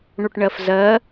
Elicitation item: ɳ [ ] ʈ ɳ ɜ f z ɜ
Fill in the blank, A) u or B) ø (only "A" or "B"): A